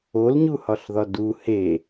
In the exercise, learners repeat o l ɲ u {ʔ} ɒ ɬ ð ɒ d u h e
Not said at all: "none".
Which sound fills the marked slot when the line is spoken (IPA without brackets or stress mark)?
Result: h